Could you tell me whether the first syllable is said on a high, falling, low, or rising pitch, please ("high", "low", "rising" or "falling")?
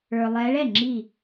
low